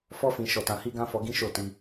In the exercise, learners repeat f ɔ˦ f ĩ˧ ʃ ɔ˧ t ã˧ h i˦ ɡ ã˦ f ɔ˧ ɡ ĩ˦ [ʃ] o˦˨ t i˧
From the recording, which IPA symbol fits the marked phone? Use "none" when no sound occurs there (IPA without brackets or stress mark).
ʃ